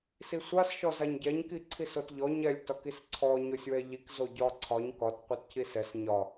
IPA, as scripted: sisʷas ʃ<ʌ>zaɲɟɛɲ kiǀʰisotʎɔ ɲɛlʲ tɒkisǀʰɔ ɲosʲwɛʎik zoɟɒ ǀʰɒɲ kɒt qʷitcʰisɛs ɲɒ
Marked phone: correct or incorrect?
incorrect